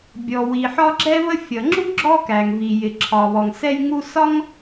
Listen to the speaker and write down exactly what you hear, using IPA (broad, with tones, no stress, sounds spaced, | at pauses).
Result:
bʲ ɔ˩ w i˩ ħ ɒ˥ ɡ͡ǁ ɛ˥ β ə˥ fʲ ʌ˩ ŋ͡ǁ u˥ ɡ͡ǁ ɔ˥ k æ˩ ŋ v i˩ j ɪ˩ ǁʰ ɒ˩ β ɔ˩ ŋ s ɛ˥ j ŋ u˥ s ɒ˥ ŋ